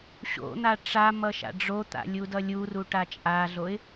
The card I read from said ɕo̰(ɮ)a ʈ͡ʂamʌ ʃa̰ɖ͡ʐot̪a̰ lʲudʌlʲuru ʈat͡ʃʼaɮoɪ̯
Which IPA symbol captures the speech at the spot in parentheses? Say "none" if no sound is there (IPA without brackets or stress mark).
n̪